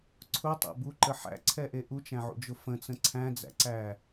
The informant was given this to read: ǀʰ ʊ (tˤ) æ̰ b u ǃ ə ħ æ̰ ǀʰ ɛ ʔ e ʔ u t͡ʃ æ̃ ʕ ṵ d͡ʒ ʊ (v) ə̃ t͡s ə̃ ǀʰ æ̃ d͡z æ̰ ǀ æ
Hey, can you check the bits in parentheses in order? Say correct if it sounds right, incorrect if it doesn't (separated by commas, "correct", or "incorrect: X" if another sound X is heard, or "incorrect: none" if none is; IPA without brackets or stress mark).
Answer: correct, incorrect: f